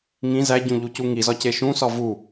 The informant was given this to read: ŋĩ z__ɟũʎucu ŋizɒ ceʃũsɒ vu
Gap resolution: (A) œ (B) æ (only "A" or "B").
B